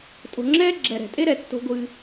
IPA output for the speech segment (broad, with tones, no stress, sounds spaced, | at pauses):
tʼ o̤˨ ŋ͡ǁ ɛː˥ ɡ͡ǁ ɛ˨ ɾ ɛ̤˩ tʼ e˥ ɾ ɛ˩ tː o̤˦ ɡʷ ɨː˨